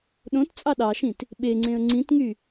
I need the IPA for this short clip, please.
ɗ õ t t͡sʼ ɑ ɗ ɑ ʃ ĩ t | ɓ e ŋ͡ǀ ẽ ə̯ ŋ͡ǀ ĩ t ŋ y

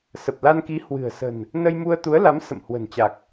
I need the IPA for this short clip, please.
s ə˨˩ p̚ l a˧ n k i˨˦ h w ɨ̤˨˩ ə̯ s ə̤˨˩ n | n ə˧ j m u˧ ə̯ t̪ u˨˦ ə̯ l a˨˦ m s ə̰˧˨ m h w ə̤˨˩ n t͡ɕ a˨˩ k̚

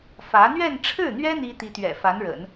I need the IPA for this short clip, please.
f ä˧˥ n̪ ɥ ɛ˥˧ n ʈ͡ʂʰ ɻ̩˥˩ n̪ ɥ ɛ˥ n̪ i˥ t̪ i˧˥ t̪ ɥ ɛ̰˨˩ f a˧˥ n ɻ ə̰˨˩˦ n

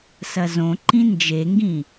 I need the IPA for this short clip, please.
s ɐ z õ ǃ ĩ n d͡ʒ e ŋ ɡ ĩ

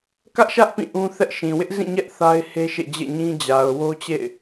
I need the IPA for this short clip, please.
k ä˦ ʔ ʃ ä˦ ʔ p ĩ˦˨ ʔ ũ˦ θ ɛ˦ ʔ ʃ ĩ˨ w ɪ˦ ʔ z ĩ˦˨ ɲ ɛ˦ ʔ θ a˦ ɪ̯ h e˦ ʃ ḛ˦˨ d͡ʑ ḛ˦˨ ɲ ĩ˦ d͡ʑ a˨ ʊ̯ w o˦ t͡ɕ ḛ˦˨ ɪ̯

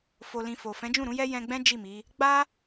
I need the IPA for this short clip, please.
f o˧ l ĩ˧ f o˨ f ɛ̃˨˦ d͡ʒ ũ˦˨ ɾ ũ˨˦ j ɛ˦ j ɛ̃˧ ɡ͡b ɛ̃˦ d͡ʒ i˦˨ m i˨˦ | ɡ͡b a˦

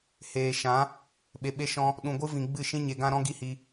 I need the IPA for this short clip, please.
h eː˨ ʃ ã˨˦ | ɓ e˨ ɓ e˧ ʃ ɔ̃˧ | ɗ ũ˨ ɡʷ ɨ˧ v ĩ˨ ɡ͡b ɨ˦˨ ʃ ĩ˦ ɲ e˨ ɡ ã˧ ɾ ɔ̃˦ ɡ i˦ h i˧

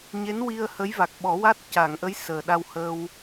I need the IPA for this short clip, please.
ɲ e˧˥ n w i˧ ə̯ h ə˧˥ j v a˨˩ k̚ ɓ ɔ˨˩˦ w a˦˥ t̚ c a˨˩˨ ŋ ʔ ə˧˥ j s əː˨˩ ɗ a˧ w h əː˧ w

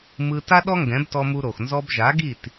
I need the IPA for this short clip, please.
m ɯ˧ t a˥ ɗ ɔ˥ ŋ ɡ ɛ̃˩˥ b t ɔ˧ m u˧ ɾ o˩ x n z ɔ˧ b ʒ a˩˥ ɡ i˥˩ t

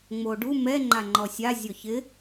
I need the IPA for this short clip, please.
ŋ͡m o ɖ u m ɛ ŋ͡ǃ a ŋ͡ǃ ɔ sʲ a zʲ ɔ ç ɪ

